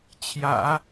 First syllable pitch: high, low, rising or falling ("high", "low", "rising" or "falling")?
low